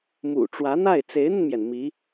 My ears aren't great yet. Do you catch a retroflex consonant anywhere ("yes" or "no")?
yes